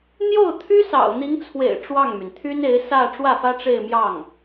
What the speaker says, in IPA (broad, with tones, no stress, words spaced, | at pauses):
n̪jo˥˩ʊ̯t̪ʰy˥ sɑ̰˨˩ʊ̯n̪i˧˥ŋt͡sʰwḛ˨˩ɪ̯ ʈ͡ʂwɑ˥˩ŋmy˩n t̪ʰy˥ne˧˥ɪ̯ sä˥˧ ʈ͡ʂwä˥˩fä˥ʈ͡ʂe˥˧ɪ̯mjɑ˥˩ŋ